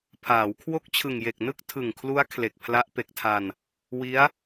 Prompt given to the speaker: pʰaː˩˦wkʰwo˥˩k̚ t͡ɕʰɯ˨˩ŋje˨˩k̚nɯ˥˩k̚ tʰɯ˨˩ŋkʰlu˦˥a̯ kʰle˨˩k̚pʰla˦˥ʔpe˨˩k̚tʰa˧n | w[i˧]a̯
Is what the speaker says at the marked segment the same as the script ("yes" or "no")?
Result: no